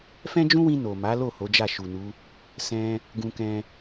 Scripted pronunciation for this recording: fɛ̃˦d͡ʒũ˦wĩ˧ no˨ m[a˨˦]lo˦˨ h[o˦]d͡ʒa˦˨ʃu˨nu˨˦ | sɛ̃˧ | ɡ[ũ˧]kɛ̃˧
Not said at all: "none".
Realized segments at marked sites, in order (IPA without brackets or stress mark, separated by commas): a˨˦, o˨˦, ũ˧